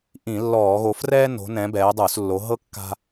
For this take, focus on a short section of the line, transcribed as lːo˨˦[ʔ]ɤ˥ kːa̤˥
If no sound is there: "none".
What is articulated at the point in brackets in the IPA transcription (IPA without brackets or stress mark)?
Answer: ɦ